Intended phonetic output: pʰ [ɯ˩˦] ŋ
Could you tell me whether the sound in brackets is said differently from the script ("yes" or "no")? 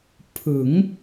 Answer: no